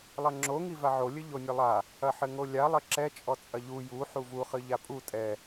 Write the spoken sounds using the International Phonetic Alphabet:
lˠ ɐ ŋ͡ǁ o ŋ i v a ʕ o lʲ ɘ ʎ o nʲ ɨ lˠ a | ɐ ħ ɘ ŋ o lʲ a lˠ ɘ ǁ ɛ t͡ʃʼ ɔ t͡sʼ ɐ ʎ u j u ħ u v u χ ɨ ʎ a pʼ u tʼ ɛ

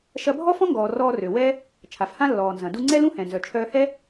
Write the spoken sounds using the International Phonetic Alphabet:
ʃ ɐ˧ bʱ ɔ˥ f ɔ̃˥ ŋ ɡ ɔː˩ r ɔː˧ r ø˩ w ɛ˥ | t͡ʃʰ a˩ f h ã˥ lː ɔː˩ n z ɐ̃˩ d u˧ ŋ͡ǀ ɛ˥ l ũ˥ h ɛ̃˩ n z œ˩ t͡ʃʰ œː˧ h ɛ˥

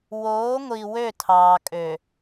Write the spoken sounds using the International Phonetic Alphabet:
w oː˨˦ ŋʷ i˨ w ø˦˨ tʰ ɑː˨ kʼ ø˨

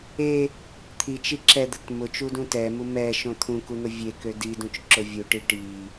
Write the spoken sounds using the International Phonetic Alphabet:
e | t̪ʰ i t͡ʃ i ǁ ɛ d̪ ə t m ʊ t͡ʃ u d ũ t ɛ m u m ɛ ʃ õ t̪ʰ ũ k u n̪ ʊ vʲ e k ø d i d ũ t͡ʃ ǁ ʊ vʲ u ʈ i ʈ i

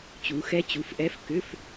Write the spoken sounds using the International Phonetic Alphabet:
t͡ɕ u˨˦ x ɛ˦˥ t͡ɕ u˨˦ f ʔ ɛ˧˥˧ f k ʏ˧˥˧ f

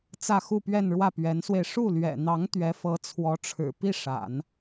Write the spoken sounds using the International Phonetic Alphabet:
t͡s ä˥˧ x u˥˧ p ɥ ɛ˥˧ n ɻ w ä˥˩ p ɥ ɛ˧˥ n s w e˧ ɪ̯ ʂ u˥˩ l ɥ ɛ̰˨˩ n̪ ɑ˧˥ ŋ t̪ ɥ ɛ˧˥ f ɤ˧˥ t͡sʰ w ɔ˧˥ ʈ͡ʂʰ ɻ̩˨˩ p i˥˩ ʂ a̰˨˩˦ n

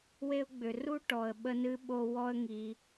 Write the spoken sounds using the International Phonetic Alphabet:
w e˧ ʊ̯ ɡ͡b ʏ˨ r u˦ ʈ ɔ˨ ə̯ ɓ ə˧ n ɨ˧ ɓ o˧ w ɔ˦ ə̯ ŋ i˧

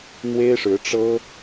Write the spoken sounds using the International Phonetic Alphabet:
n̪ w e˥ ɪ̯ ʂ ɻ̩˧˥ ʈ͡ʂ ɤ˥

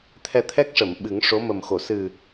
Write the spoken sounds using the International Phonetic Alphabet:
t̪ʰ ɛ˧ t̪ʰ ɛ˦˥ k̚ ʂ ə˨˩˨ m ɓ ɨ˨˩˦ ŋ ʂ o˧˥ m ə˨˩ m x o˨˩˨ s ɨ˨˩

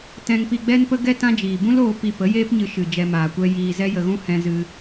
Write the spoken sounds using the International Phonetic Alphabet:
t ɛ̃˧ ŋ p i˧ ɡ͡b ɛ˦ n p ə˦ ɡ ɛ˦ t ã˦ d͡ʒ iː˨ b ũ˦ l oː˧ p i˧ p ə˨˦ j eː˦ p ɲ ɨ˧ ʃ ɨ˨ d͡ʒ ɛ˧ m aː˨ kʷ ɛ˦ j iː˧ z ɛ˦ j ə˧ ɣ ũ˦ h ɛ̃˧ z ɨ˧

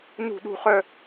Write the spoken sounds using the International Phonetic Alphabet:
n ṳ˥˧ ɗ ṳ˥˧ χ œ˥

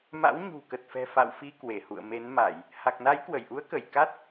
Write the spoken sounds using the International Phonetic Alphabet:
m a̰˧˥ w ɲ ṳ˨˩ k ə˨˩ t̚ f ɛ̤˨˩ f a̰˧˨ w f i˧ k w e˧˩ h ṵ˧˨ ə̯ m e˨˦ n m a˧˩˨ j | h a˨˩ k̚ n a˨˦ j k w ə˧˩ j ʔ u˨˦ ə̯ k ə˧˩ j k a˦˥ t̚

